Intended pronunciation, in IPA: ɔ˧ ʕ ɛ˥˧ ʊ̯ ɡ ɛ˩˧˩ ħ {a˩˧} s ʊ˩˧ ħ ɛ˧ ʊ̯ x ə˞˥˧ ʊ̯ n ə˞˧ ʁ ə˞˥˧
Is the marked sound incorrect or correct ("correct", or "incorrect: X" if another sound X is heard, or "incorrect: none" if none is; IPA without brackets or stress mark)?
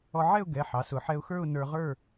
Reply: incorrect: ɑ˩˧